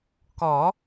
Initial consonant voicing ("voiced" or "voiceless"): voiceless